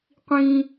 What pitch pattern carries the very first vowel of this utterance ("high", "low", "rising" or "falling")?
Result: high